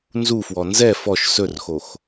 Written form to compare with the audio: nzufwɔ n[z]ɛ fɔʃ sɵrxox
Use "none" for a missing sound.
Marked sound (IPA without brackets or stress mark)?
z